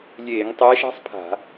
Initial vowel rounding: unrounded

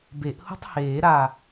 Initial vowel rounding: unrounded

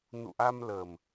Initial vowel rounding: rounded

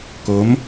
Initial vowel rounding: rounded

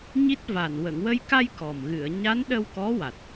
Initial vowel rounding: unrounded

